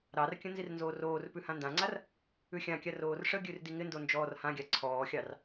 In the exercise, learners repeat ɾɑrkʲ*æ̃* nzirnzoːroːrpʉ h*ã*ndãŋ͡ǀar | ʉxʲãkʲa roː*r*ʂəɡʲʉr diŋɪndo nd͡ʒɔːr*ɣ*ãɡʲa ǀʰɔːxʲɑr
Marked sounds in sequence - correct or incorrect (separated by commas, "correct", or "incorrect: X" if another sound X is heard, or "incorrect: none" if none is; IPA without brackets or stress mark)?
incorrect: ə̃, correct, correct, incorrect: h